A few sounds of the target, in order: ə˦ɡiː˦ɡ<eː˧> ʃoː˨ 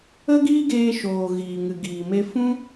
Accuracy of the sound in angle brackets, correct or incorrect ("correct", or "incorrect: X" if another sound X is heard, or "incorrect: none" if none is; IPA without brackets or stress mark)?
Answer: correct